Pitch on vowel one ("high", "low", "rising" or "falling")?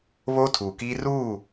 high